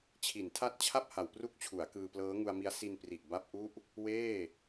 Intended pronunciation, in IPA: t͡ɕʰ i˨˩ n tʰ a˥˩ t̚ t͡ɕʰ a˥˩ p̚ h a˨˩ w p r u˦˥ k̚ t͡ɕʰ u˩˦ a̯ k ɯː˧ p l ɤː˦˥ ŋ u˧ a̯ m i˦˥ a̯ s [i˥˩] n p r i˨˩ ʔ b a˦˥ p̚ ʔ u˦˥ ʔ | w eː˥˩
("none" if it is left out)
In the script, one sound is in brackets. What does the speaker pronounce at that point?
i˧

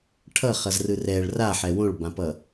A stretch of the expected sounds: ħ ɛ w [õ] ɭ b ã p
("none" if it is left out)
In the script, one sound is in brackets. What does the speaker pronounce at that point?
õ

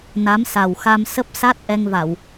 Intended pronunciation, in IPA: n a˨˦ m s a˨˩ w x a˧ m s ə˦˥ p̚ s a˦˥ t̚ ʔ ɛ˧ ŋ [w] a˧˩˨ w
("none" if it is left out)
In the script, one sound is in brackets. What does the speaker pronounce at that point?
v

